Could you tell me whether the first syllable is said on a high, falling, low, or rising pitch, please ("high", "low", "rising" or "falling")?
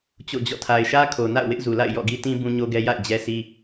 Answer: falling